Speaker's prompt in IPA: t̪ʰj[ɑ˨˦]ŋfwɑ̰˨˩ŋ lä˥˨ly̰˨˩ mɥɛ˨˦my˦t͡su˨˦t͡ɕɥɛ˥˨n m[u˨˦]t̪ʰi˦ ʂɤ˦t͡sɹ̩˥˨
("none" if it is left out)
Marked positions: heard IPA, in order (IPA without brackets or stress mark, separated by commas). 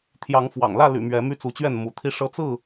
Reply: ɑ˨˦, u˨˦